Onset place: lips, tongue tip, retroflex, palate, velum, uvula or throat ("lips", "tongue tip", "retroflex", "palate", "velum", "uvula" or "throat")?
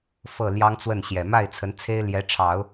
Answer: lips